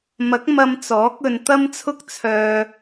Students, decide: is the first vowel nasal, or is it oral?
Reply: oral